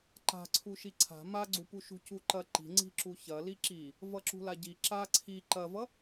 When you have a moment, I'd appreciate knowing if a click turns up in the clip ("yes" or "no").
yes